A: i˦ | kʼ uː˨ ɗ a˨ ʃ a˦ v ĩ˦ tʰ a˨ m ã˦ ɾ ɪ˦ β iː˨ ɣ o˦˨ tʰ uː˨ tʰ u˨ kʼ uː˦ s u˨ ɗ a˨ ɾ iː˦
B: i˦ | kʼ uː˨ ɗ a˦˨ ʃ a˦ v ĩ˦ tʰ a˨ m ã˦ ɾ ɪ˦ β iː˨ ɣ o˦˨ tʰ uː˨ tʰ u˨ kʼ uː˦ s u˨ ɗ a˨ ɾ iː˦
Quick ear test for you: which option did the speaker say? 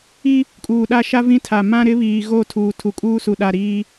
B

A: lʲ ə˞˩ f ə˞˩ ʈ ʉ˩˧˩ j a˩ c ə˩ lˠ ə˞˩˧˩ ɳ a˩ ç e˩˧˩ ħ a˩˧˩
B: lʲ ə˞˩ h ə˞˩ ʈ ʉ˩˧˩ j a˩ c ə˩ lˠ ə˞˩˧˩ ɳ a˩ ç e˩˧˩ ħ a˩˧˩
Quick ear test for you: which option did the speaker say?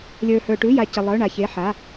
B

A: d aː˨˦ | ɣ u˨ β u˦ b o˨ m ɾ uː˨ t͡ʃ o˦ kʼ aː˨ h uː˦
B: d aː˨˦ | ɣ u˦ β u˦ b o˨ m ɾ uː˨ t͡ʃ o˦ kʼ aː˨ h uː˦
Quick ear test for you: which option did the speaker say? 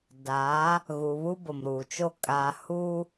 A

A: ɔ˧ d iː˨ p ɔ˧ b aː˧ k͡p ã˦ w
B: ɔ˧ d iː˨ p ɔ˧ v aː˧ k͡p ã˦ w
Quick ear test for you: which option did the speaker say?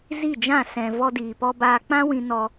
A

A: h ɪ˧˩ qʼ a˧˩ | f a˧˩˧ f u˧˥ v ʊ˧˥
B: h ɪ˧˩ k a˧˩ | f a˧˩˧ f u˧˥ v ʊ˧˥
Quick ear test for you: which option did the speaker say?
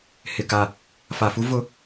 B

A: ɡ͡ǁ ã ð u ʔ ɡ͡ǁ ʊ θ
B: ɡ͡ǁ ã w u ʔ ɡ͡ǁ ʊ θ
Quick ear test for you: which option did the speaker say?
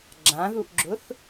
A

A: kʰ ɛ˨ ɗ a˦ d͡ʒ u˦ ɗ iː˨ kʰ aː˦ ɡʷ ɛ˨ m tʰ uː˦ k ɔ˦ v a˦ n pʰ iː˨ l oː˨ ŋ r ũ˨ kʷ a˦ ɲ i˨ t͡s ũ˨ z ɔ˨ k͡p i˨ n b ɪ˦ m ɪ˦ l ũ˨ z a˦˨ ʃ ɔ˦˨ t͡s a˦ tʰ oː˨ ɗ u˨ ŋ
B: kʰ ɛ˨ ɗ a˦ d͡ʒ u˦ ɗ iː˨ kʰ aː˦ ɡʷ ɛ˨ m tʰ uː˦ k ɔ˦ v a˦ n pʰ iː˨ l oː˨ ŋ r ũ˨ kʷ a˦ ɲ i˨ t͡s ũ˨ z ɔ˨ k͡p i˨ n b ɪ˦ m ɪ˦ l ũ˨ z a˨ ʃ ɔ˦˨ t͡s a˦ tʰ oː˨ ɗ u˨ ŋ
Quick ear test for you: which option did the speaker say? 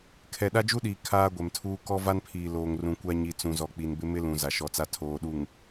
B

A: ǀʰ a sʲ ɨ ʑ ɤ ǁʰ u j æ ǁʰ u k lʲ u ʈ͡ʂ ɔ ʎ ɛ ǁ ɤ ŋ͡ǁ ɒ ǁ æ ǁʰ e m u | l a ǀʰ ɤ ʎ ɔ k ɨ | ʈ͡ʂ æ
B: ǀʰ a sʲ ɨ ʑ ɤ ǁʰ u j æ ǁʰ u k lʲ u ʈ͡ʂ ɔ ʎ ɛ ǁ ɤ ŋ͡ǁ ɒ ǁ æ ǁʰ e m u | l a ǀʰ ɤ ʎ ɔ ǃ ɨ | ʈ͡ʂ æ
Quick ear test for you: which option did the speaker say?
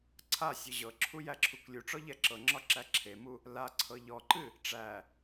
B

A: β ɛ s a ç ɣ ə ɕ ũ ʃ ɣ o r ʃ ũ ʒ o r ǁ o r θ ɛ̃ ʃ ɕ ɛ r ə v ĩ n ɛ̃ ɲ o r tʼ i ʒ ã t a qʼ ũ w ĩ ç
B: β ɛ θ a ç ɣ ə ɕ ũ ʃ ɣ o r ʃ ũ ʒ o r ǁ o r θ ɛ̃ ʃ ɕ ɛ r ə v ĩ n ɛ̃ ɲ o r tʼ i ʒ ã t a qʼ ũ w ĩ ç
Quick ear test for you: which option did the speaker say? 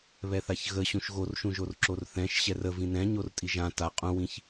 B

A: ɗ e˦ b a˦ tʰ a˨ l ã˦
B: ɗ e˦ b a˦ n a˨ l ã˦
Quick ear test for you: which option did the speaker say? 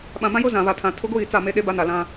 B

